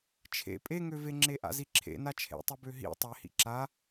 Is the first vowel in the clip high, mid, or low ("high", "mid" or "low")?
mid